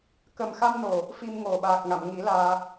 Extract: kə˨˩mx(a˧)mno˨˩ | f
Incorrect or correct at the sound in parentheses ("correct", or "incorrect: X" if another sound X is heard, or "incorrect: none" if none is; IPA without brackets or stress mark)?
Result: correct